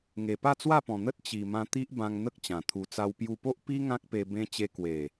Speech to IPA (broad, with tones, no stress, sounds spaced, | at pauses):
ŋ e˨˩ p a˥˧ t͡s w a˥˧ p ɔ̃˨˩ n̪ ə˦ t̚ t͡ɕ i˨˩ m ã˧ t̪ i˦ ʔ b ã˧ ŋ n̪ ə˦ k̚ t͡ɕ ã˨˩ t̪ʰ u˧ t͡s a˦ w p j u˧ p o˦ ʔ p i˦ ŋ ã˦ k̚ p e˧ b ẽ˦ t͡ɕ e˧ k w e˨˩